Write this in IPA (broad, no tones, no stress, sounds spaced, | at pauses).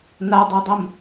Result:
n a dˤ e dˤ ʊ m